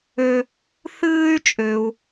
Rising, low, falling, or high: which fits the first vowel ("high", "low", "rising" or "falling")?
high